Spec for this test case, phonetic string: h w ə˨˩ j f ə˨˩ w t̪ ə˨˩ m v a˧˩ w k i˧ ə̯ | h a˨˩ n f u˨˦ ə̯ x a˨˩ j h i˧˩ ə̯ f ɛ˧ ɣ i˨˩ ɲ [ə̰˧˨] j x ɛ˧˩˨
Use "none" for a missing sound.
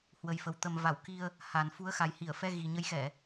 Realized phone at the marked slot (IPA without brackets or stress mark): ə˨˦